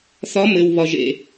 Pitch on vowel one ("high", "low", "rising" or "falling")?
rising